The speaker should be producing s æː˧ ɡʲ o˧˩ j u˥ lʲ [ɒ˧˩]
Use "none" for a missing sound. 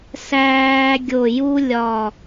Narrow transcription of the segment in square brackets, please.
ɒ˧˩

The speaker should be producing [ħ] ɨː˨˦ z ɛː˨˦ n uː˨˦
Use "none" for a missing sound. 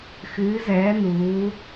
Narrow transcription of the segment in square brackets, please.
x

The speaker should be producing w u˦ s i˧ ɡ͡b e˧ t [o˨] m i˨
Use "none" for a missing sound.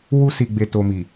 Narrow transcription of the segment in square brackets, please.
o˧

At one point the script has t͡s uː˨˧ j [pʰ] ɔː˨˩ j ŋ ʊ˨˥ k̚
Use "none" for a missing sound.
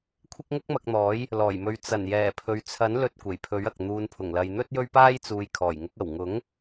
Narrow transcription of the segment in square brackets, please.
kʰ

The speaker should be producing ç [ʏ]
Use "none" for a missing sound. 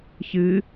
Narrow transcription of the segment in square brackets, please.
ɨ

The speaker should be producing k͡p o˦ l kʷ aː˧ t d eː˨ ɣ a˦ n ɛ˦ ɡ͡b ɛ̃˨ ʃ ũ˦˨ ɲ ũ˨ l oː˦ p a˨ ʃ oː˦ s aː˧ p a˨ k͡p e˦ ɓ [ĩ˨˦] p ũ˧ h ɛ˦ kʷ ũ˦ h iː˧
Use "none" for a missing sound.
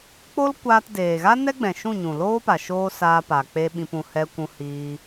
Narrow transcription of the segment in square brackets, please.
ĩ˧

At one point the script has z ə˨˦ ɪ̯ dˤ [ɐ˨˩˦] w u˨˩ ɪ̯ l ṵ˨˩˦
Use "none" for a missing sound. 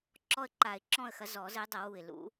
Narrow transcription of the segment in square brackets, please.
ɐ˨˩˦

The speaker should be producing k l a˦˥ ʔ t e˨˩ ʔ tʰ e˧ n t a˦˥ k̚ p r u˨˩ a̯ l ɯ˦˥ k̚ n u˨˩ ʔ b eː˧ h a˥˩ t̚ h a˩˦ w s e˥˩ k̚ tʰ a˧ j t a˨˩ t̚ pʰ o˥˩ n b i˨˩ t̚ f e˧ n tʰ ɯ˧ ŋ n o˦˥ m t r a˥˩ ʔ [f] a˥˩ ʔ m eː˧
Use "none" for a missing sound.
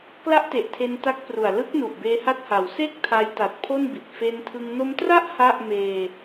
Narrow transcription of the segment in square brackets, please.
h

